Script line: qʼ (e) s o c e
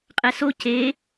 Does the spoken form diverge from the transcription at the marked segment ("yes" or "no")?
yes